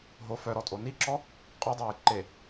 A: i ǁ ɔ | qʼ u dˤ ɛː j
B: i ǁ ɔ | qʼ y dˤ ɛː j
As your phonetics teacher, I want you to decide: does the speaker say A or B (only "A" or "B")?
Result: B